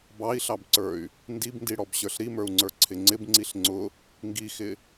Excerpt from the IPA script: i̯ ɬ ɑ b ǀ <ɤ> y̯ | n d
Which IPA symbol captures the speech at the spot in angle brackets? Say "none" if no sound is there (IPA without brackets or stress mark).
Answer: ə˞